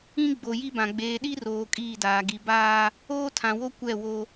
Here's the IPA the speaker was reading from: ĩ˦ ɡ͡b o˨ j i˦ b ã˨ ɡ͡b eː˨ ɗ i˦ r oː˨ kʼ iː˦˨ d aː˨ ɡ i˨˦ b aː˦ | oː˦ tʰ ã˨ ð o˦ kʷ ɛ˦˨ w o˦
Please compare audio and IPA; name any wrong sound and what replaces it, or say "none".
ð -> w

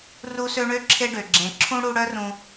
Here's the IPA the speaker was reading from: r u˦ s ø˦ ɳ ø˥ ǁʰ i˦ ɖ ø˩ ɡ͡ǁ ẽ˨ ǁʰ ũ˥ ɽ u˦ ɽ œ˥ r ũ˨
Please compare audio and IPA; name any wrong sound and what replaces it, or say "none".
i˦ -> e˦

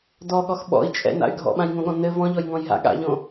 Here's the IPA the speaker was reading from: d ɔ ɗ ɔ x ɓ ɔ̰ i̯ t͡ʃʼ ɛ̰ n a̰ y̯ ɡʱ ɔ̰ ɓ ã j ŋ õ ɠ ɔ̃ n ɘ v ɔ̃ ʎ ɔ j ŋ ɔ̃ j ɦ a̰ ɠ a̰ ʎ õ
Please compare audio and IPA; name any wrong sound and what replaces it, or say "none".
ɗ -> ɠ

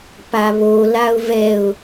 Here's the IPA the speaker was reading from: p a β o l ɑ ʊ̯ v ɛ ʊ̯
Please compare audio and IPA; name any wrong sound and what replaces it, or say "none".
ɑ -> a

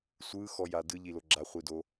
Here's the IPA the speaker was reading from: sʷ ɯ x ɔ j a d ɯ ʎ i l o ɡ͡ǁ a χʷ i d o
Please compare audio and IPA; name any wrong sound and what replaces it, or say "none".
none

